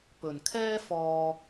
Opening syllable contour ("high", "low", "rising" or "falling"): low